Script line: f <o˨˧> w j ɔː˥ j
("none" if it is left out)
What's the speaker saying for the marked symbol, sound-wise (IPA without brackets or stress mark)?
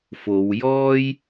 o˨˧